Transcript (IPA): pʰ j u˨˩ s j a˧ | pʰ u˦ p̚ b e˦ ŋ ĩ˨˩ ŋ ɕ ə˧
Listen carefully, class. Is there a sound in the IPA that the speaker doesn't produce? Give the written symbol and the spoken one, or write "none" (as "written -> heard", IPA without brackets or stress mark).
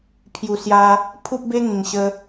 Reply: none